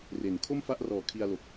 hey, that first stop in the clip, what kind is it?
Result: aspirated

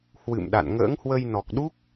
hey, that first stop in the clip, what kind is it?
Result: implosive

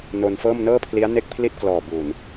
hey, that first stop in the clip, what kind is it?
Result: aspirated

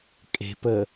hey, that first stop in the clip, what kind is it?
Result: ejective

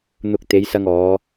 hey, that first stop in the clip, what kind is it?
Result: plain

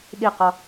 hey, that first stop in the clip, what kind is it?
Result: implosive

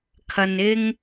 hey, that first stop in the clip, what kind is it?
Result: aspirated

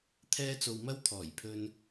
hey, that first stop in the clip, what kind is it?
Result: aspirated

